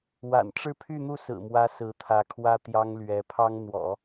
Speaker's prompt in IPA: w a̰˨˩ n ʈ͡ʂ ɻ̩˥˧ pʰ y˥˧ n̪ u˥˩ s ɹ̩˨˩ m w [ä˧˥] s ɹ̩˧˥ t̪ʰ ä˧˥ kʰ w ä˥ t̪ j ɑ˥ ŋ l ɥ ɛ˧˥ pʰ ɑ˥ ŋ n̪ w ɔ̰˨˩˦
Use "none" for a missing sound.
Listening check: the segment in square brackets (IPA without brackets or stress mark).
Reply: ä˧˥